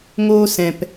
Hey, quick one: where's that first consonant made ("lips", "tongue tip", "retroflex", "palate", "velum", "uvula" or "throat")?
velum